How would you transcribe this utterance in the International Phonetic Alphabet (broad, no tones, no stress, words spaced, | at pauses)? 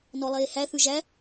nɔlˠeːhæ θʉʒæ